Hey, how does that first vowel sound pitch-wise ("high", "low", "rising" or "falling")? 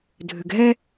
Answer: low